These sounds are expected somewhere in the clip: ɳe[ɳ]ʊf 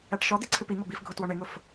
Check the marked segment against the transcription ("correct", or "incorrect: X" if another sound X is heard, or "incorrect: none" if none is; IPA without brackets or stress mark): incorrect: ŋ